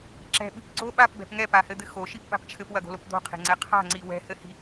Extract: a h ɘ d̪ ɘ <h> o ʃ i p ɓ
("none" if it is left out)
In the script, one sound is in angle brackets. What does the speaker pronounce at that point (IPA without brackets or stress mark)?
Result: x